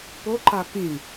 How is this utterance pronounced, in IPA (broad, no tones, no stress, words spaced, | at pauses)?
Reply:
poǃa pĩ